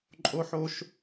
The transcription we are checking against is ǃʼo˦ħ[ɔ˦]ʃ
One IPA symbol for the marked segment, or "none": o˦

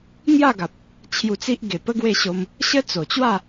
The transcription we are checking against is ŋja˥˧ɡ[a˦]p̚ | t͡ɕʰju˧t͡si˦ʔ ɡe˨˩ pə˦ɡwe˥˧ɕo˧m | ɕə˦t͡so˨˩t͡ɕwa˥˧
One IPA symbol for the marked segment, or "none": a˨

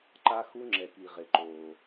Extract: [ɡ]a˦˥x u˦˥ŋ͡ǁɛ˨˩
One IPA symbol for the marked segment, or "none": ǃ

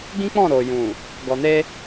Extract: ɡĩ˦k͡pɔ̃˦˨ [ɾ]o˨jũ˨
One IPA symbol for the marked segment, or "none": ɾ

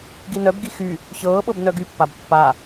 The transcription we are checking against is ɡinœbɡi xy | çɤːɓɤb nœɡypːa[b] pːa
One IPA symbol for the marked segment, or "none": b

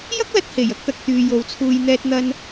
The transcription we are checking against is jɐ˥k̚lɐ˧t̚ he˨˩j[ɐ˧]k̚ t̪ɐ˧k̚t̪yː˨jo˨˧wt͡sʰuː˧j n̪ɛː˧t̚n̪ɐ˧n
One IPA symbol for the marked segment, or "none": ɐ˧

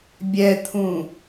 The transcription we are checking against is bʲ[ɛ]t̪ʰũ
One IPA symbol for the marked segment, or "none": ɛ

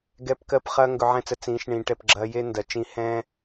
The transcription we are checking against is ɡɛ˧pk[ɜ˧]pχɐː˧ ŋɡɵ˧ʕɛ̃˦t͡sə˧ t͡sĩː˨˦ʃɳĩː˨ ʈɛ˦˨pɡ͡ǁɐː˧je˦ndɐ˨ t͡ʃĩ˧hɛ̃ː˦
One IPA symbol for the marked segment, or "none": ɜ˧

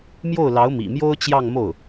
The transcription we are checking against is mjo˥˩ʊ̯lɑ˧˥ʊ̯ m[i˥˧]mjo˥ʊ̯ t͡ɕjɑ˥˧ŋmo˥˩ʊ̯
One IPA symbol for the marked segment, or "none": ḭ˨˩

